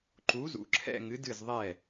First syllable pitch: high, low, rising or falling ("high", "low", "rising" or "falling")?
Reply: rising